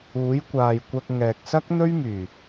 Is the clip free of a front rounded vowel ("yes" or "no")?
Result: no